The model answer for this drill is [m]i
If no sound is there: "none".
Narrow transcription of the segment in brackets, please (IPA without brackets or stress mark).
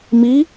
m